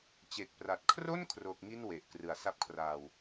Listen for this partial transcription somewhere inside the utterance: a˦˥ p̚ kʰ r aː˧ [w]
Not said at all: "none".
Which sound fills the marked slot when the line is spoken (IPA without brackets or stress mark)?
w